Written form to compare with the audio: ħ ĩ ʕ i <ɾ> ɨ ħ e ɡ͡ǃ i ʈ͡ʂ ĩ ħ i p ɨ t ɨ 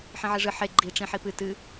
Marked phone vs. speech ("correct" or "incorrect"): incorrect